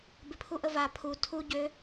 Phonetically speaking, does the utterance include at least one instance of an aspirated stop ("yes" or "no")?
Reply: yes